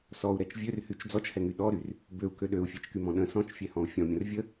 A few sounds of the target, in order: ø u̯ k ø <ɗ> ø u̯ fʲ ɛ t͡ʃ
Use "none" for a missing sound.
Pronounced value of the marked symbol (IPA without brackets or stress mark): ɗ